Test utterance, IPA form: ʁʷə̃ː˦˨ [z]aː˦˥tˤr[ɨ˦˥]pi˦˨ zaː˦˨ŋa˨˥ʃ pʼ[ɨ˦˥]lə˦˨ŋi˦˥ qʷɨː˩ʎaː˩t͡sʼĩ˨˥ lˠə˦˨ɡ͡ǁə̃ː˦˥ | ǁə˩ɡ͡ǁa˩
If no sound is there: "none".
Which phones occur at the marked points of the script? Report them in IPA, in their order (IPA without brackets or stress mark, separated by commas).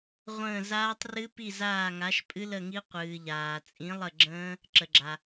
z, ɨ˦˥, ɨ˦˥